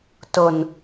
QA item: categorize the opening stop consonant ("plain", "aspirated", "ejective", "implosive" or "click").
plain